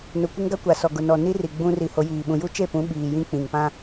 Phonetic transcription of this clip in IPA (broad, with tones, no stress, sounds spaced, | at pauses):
n ʊ˨ kʷ ɪ˦ ŋ ɡ a˦ kʷ a˨ s ɔ˨ ɡ ʊ˨ n ɔ˨ n i˦ r i˨ ɡ͡b ũ˦ r i˨ h o˨˦ j iː˨ ɓ ũ˨ j u˦ t͡ʃ e˦˨ p ũ˨˦ ɓ iː˨ j ĩ˦ k͡p ĩ˨ ŋ p ã˦